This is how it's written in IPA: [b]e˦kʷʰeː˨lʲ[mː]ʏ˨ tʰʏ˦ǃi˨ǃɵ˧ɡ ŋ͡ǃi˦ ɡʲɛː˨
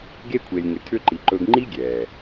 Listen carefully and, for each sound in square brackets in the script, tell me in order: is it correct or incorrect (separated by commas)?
incorrect, incorrect